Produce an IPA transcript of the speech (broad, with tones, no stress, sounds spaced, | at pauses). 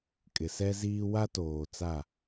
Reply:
kʼ ɪ˨ s ɛ˦ z iː˦ w a˦ t oː˨ t͡s a˦˨